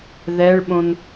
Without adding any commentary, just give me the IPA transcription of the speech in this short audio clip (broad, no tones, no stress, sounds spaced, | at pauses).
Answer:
ð ɛ ɭ ɓ õ n